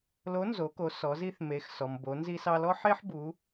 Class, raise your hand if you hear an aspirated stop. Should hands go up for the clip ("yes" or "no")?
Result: no